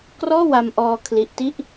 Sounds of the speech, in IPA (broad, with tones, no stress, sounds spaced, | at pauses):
k r ɔː˥˩ w a˧ m ʔ ɔː˧ kʰ l i˦˥ ʔ t i˥˩ ʔ